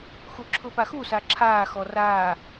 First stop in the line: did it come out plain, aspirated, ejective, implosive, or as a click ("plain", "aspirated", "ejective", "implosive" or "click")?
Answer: click